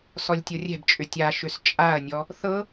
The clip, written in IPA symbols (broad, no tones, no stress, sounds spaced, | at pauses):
s ɔ lʲ tʲ ɤ rʲ ɛ̤ b t͡ʃʼ ʏ tʲ a ʃ ʏ s t͡ʃʼ a ɐ̯ nʲ ɔ | θ ɤ